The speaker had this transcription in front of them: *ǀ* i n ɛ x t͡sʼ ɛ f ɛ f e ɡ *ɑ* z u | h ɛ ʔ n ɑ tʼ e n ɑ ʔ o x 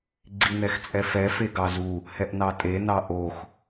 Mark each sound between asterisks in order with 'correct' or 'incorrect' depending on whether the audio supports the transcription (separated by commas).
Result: incorrect, correct